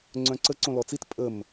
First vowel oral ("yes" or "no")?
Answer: no